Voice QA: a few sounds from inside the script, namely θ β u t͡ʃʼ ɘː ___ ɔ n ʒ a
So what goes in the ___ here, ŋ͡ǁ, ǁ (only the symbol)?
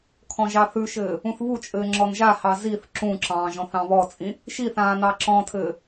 ŋ͡ǁ